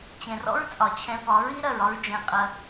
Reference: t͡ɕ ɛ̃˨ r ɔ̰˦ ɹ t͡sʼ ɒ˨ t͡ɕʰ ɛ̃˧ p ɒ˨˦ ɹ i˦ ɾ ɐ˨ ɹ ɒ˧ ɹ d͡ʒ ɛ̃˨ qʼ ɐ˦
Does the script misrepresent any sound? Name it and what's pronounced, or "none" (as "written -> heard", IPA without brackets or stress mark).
none